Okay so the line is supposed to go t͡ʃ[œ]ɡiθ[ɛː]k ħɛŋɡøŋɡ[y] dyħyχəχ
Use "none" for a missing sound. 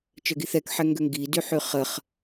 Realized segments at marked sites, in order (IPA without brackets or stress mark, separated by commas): œ, ɛ, i